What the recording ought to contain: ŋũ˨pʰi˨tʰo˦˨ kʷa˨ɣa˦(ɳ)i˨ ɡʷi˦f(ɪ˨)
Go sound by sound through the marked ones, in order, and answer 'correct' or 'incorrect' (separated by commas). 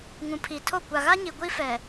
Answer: incorrect, incorrect